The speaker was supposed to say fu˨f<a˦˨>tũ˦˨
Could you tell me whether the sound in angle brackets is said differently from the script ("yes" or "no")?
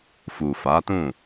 yes